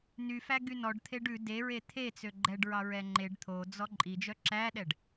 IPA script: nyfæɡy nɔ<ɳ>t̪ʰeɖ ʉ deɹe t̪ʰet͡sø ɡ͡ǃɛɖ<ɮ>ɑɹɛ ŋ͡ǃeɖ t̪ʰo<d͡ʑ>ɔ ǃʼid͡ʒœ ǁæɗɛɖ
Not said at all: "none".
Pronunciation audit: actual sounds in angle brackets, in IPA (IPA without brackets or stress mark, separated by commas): ɖ, ɹ, d͡z